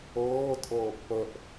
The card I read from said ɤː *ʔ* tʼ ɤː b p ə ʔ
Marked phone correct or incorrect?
incorrect